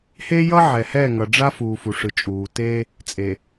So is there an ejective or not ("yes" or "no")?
yes